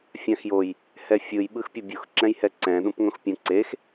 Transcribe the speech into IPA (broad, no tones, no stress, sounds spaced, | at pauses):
fʲ ã x j o j | h ɛ fʲ ɯ j ɓ ɯ x pʲ o bʲ u x ǁ ɛ̃ j h ɛ ǀ ɛ̃ ɗ ũ p ŋ õ x pʲ ũ ǀ e x